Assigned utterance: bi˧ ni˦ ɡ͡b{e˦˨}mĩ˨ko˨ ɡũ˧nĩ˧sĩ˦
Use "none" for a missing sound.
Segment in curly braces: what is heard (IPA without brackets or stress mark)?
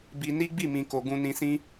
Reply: i˦˨